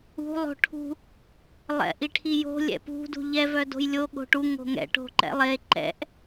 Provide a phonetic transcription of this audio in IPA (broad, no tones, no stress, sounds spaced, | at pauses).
ṳ lˠ o̤ ʈʰ ṳ | lˠ ɛ̰ ʔ i ʈʰ i j o̤ lʲ ɛ̰ p ṳ d ṳ ʎ ɛ v œ d o̤ j lʲ o ɠ o̤ ʈ u ŋ o̤ ŋ ɛ̰ ʈ o̤ ǃ ɛ̰ lˠ e ǃ ɛ̰ ʔ